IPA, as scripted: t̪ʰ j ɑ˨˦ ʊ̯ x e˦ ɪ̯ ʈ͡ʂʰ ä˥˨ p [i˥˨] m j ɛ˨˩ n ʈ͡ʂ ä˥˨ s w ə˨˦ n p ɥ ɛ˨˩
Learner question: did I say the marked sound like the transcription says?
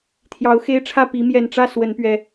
no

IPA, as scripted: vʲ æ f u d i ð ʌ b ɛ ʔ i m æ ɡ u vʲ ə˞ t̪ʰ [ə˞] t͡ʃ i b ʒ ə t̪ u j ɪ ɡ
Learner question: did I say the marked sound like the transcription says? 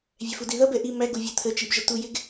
no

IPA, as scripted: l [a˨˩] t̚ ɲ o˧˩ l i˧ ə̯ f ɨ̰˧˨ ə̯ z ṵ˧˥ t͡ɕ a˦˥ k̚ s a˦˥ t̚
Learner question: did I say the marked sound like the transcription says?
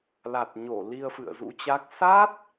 yes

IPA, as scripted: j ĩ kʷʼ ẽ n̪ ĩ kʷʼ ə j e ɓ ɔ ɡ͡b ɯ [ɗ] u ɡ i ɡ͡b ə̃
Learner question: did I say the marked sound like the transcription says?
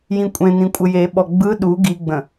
yes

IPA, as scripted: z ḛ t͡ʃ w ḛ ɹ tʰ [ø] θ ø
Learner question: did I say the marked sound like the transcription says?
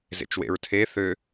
no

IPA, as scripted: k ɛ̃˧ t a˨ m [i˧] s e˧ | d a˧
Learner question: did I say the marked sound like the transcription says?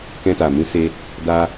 no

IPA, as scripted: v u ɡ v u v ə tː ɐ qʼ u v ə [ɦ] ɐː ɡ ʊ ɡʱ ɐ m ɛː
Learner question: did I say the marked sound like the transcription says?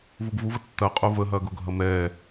yes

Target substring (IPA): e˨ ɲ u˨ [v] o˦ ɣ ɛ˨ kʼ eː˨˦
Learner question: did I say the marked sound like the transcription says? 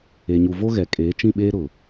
yes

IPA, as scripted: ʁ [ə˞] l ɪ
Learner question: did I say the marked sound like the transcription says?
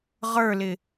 yes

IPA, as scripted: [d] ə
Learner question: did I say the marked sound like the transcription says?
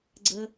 no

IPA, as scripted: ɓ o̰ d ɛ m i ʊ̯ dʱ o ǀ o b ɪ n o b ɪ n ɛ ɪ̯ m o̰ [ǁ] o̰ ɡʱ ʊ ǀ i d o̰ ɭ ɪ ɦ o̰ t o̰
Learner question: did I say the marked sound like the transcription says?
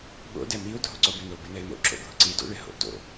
yes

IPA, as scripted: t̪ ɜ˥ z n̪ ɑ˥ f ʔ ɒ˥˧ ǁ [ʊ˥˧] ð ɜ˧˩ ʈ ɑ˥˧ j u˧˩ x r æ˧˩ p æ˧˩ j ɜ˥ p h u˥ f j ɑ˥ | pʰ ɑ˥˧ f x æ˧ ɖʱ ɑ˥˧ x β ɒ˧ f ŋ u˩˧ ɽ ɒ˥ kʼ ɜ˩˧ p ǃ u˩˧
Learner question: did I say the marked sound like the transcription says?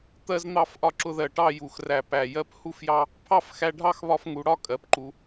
yes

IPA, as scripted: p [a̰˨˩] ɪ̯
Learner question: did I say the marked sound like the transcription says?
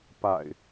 yes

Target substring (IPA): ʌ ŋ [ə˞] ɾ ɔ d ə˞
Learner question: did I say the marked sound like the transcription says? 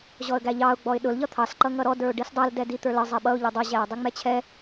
no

